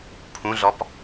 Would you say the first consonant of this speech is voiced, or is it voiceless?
voiceless